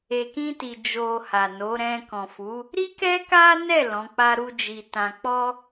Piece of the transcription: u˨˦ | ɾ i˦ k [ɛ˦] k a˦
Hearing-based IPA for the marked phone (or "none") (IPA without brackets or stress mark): ɛ˦